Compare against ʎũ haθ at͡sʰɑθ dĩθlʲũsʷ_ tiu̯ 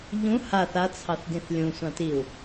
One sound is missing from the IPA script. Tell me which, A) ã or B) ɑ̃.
B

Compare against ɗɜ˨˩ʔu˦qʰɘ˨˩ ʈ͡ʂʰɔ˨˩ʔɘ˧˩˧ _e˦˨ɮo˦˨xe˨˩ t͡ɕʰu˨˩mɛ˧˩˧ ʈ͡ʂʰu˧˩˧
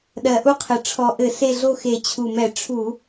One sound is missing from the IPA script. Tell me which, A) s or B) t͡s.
A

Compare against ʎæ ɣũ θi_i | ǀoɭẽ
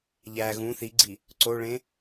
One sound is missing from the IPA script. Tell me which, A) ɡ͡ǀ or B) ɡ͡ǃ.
A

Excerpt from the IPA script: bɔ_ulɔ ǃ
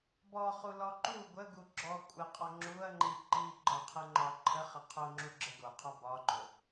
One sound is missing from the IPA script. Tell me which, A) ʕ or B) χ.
B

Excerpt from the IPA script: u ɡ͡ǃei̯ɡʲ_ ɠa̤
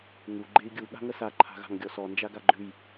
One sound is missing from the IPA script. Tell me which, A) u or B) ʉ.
A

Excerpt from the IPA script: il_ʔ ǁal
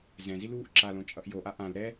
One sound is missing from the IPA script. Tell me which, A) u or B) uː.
B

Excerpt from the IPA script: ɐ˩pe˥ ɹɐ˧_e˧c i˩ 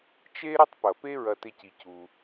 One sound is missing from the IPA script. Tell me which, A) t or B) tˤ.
A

